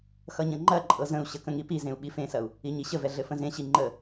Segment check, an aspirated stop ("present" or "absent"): absent